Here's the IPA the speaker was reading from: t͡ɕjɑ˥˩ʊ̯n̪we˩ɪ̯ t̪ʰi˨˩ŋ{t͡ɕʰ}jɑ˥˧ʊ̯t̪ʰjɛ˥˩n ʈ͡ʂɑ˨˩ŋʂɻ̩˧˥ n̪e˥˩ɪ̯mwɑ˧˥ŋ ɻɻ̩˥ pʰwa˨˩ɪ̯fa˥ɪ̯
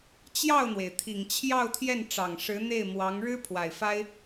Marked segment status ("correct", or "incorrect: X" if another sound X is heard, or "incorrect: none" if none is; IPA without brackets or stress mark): correct